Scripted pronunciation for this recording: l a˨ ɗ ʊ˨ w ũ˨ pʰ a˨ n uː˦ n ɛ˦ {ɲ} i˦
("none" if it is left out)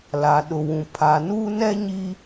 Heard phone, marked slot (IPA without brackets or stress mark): ɲ